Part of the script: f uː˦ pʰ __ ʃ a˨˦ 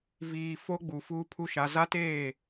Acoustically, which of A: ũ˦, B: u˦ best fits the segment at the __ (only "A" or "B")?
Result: B